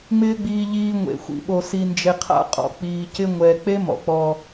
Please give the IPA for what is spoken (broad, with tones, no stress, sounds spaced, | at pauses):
ŋ͡m ɪː˦ ɡ͡b iː˧ ʎ iː˧ ŋʷ ḛ˨ xʷ ḭ˨ ɓ o˨ s i˨ n d͡ʒ e˨ qʰ a̰˧ qʼ ɔ̰˨ k͡p iː˨ c ɪ˧ ŋʷ ɛ˨ k͡p e˦ m ɔ̰˨ k͡p ɔ˨